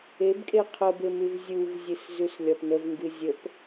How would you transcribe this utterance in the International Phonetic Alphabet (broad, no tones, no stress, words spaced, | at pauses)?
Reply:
ebkʼe qʰəbemʉv zʲuvzʲɨszʉslʲɒp nəvŋɡɨ zʲəp